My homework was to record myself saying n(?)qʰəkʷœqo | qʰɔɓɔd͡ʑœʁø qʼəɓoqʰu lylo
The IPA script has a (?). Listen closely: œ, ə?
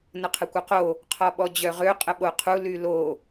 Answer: ə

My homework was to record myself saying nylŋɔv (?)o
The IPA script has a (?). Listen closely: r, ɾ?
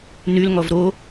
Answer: ɾ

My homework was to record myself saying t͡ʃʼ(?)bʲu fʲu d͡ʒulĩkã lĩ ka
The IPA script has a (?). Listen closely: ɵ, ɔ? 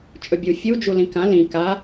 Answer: ɵ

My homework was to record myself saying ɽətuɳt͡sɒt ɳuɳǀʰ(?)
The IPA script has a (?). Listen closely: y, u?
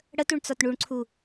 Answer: u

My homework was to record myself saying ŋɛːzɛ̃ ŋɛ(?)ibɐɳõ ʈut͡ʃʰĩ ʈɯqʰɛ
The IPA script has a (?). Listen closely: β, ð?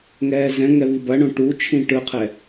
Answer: β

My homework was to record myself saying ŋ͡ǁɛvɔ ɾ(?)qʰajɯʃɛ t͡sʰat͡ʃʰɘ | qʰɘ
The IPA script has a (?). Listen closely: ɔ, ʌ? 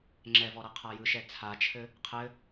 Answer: ʌ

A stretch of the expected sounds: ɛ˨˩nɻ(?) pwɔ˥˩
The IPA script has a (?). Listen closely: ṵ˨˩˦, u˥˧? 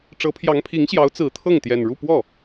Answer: u˥˧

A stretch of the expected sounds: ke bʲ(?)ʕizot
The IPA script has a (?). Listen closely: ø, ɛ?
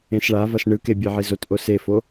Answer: ɛ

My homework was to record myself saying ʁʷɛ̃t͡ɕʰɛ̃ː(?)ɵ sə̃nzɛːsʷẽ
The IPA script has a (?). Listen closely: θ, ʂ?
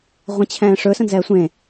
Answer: ʂ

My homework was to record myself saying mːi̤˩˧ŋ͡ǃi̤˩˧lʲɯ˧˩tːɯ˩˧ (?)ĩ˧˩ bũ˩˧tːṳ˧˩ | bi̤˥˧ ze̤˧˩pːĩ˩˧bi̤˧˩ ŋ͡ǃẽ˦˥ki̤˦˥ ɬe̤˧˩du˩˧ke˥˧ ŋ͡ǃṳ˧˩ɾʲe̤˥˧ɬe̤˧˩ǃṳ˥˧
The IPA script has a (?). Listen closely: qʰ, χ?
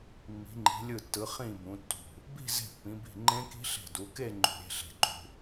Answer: χ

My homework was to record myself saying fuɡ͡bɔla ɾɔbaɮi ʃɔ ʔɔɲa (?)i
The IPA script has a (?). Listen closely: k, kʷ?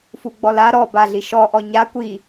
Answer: kʷ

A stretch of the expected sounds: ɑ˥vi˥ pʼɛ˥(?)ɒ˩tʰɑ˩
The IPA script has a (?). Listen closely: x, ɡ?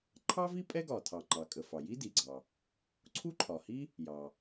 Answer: ɡ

